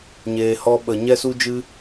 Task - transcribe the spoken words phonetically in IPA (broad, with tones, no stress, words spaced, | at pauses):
ɲeː˨ hɔ˧ɓə˨ ɲɛ˦su˦d͡ʒɨ˦